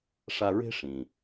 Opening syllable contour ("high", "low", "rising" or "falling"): high